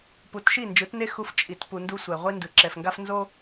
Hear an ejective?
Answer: yes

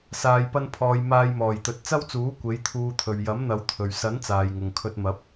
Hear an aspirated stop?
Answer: yes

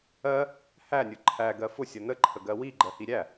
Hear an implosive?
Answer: no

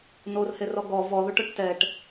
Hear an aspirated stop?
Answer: no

